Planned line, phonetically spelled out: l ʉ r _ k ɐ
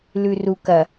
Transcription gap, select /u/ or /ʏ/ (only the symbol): u